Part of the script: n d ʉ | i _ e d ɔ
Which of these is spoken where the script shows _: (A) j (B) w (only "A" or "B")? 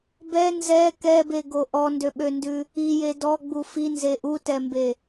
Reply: A